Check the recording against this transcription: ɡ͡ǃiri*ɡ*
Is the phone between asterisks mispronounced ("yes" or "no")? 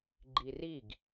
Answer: no